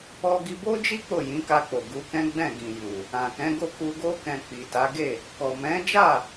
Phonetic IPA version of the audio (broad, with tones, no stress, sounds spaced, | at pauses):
ɔ˧ ɡ i˧ b o˦ d͡ʒ i˦ k͡p o˦˨ j ĩ˨˦ k a˧ k͡p o˨ ɡ u˨˦ k ɛ̃˦ ɡ͡b ɛ̃˦˨ ɡ ĩ˨ j u˨ | ã˨ k ɛ̃˨˦ ɡ o˦˨ k u˧ ɡ o˦ k ɛ̃˧ k͡p i˨ t a˨˦ ɡ e˦˨ | k ɔ˨ m ɛ̃˨˦ d͡ʒ a˦˨